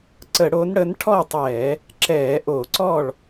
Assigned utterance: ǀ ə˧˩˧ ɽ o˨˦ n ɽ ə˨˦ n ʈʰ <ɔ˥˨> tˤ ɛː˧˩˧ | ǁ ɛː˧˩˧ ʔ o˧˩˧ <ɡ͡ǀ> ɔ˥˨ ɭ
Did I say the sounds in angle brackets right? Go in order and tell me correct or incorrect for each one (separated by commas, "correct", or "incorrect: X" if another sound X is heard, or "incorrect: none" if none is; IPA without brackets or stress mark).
correct, incorrect: ǀ